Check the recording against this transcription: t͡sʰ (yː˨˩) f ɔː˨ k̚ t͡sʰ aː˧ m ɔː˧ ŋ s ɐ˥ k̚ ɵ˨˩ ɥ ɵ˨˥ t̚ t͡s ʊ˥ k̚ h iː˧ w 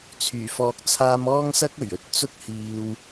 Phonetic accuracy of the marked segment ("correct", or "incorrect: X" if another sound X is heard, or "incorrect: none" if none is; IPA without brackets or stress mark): correct